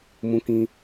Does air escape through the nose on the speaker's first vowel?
yes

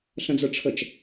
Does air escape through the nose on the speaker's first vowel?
yes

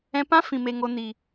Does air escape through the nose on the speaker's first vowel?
yes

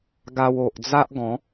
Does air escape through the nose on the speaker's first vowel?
no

